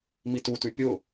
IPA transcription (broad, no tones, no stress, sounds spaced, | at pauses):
m i t u t ʉ pʲ ʊ